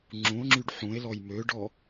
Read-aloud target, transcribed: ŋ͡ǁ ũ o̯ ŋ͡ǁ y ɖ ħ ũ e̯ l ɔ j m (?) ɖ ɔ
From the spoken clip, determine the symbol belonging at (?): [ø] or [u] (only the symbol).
ø